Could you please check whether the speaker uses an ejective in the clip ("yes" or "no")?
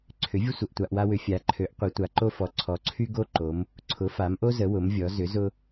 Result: no